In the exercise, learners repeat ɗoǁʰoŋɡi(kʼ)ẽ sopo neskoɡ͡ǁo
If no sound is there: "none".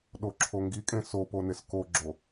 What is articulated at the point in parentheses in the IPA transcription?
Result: kʼ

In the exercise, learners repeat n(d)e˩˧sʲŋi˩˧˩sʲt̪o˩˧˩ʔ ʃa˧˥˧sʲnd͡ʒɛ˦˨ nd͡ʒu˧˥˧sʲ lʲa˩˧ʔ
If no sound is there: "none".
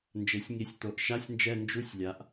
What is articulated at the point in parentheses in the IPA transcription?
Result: d͡ʒ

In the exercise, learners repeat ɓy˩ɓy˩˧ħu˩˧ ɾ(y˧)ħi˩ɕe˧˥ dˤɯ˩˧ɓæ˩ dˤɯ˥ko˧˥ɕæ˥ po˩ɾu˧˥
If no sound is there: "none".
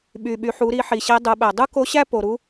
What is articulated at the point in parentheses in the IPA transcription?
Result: i˧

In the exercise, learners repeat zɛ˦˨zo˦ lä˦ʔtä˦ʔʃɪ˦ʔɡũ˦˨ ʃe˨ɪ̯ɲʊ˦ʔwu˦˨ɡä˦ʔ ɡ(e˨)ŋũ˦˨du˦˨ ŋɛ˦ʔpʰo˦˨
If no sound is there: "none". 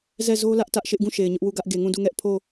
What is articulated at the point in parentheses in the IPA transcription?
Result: e˨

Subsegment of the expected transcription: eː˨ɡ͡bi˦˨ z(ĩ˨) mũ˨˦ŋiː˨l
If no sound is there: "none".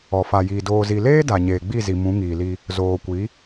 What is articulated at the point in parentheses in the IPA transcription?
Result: i˨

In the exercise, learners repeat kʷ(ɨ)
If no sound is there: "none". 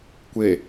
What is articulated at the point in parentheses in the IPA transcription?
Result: e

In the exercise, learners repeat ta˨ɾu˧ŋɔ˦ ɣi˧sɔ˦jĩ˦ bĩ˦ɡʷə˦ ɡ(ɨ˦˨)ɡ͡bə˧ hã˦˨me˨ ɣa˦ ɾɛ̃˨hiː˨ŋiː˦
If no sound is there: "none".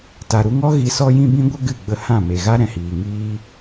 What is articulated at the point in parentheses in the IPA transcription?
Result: ɨ˦˨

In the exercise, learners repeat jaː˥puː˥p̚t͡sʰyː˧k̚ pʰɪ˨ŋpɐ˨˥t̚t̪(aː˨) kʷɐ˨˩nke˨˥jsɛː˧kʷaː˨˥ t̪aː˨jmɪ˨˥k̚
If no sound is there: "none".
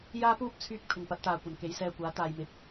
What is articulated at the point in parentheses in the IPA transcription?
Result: aː˨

